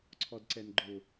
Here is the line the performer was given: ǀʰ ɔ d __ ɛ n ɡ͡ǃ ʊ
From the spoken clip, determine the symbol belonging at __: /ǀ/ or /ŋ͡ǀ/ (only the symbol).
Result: ǀ